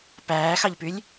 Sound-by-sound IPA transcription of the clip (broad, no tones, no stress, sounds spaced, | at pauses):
p æː x ɑ ʎ p y lʲ